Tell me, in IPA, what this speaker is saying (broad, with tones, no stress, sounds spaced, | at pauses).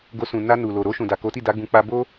ɡ o˧ s ũ˨ n a˧ n u˨ l o˨ ɾ o˧ ʃ ũ˨ d a˨ k o˨˦ t i˦˨ d a˨˦ ɡ ũ˧ k͡p a˦ b o˦